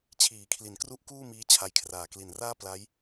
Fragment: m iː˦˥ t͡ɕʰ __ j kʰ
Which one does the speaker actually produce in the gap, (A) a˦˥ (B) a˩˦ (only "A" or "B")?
A